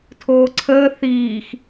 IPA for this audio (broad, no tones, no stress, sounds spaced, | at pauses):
tʰ oː ǀʰ əː θ iː x